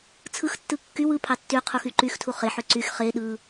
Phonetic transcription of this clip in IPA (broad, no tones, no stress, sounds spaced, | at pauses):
t͡sʰ ɯ x tː ɯ kː y w ɯ pʰ ɑ tː y qʰ u x y ǃ y x tʰ u χ e ħ ø ǀ y x χ e ɗ ɯ